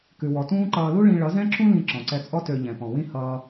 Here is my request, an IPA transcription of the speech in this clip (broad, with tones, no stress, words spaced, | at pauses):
kʉ˩wɔ˩tũː˥ǃʌː˧ lu˥ɭĩ˧ ɭʌ˩˥zɛ̃˥ǁũ˥ lĩ˧ ǁɔ̃˩ǀɛ˧t͡sʼɔ˥ tø˧ʎɛ̃˩ pɔ̃˩wĩ˥ hʌː˧